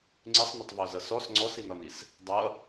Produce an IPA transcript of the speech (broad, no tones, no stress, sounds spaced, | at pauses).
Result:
ŋ͡ǀ ɪ sˤ n ə tˤ v ɔ z ʌ s ɔ s ŋ͡ǀ ɔ s i n ɒ n i s | dˤ ʌ